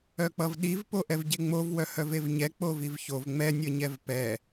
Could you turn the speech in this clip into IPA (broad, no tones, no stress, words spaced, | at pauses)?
œk͡pʌvɗiv poʔɛvɟeŋ͡mov wœhœvevɲɛ k͡povivçov ŋ͡mɛ nʲʌɲɛvpɛ